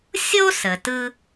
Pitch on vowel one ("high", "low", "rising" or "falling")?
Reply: high